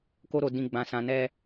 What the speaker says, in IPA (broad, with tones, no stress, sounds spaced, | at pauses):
k o˦ ɾ o˧ d ĩ˧ ɡ͡b ã˧ s ã˧ n ɛ˦